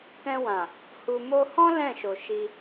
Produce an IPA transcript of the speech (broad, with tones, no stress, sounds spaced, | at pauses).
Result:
k ɛ̃˧ w ã˨ | h u˧ m o˧ h ɔ̃˦ l ɛ̃˦˨ ʃ o˨ ʃ i˧